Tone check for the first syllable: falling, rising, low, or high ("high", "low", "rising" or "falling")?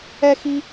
high